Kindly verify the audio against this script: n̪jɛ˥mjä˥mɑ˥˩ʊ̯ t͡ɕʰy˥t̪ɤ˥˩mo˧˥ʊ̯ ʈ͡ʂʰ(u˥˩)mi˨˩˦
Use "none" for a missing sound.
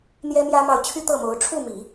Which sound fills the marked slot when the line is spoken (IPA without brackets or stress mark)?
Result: u˥˩